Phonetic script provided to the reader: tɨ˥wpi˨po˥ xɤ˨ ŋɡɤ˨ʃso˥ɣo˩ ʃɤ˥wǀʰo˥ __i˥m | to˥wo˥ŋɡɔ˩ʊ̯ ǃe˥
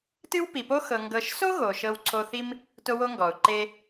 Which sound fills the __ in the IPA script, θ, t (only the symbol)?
θ